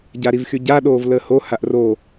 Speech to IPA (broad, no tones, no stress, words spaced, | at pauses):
ɟaɾivxyɟa ɗoːvləːho haʔro